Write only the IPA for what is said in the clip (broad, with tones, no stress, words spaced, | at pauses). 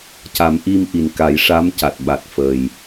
ca˨˩˦mʔi˧mʔi˨˩n ka˨˩˦jʂa˧˥mca˨˩t̚ ɓa˨˩t̚fəː˨˩j